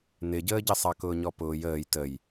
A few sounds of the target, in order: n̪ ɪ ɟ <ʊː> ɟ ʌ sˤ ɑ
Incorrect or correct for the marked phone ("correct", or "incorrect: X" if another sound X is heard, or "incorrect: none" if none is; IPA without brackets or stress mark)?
incorrect: əː